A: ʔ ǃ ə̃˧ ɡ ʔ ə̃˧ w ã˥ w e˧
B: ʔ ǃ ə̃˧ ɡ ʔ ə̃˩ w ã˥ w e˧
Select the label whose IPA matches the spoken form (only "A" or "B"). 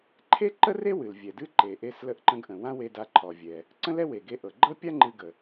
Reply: B